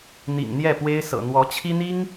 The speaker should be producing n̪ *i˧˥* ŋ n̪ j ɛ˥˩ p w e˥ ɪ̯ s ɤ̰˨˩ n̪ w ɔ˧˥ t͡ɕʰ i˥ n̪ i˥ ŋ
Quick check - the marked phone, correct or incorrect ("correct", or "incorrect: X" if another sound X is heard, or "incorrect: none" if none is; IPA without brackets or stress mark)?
incorrect: ḭ˨˩